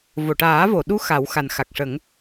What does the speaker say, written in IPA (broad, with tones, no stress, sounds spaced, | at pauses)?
v o˨˩˨ ʈ aː˨˩˦ v o˨˩˨ ɗ u˧˥ x a˨˩˦ w x a˨˩ n x a˨˩ k̚ ʂ ə˨˩˦ ŋ